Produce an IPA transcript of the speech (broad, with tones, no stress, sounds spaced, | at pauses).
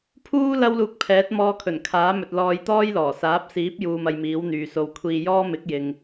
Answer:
pʰ uː˥ l ɐ˥ w l uː˧ k̚ pʰ ɛː˨˥ t̚ m ɔː˧ kʰ ɵ˨˩ n kʰ aː˨˥ m ɵ˨ t̚ l ɔː˧ j t̪ ɔː˥ j l ɔː˨˩ s aː˨˥ p̚ s iː˨˥ p̚ j uː˧ m ɐ˧ j m iː˨˥ w n̪ yː˨ s o˨ w kʷʰ iː˧ j ɔː˥ m ɪ˨˥ k̚ j ɪ˨ ŋ